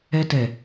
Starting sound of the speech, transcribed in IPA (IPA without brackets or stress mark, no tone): ɛ